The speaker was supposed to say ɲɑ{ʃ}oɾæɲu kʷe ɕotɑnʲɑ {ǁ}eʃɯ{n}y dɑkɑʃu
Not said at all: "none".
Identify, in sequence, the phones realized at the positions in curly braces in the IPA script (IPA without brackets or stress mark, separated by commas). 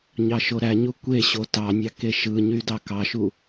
ʃ, k, ɲ